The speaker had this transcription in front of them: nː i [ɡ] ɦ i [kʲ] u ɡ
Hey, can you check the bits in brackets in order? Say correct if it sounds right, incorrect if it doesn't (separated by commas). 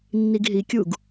correct, correct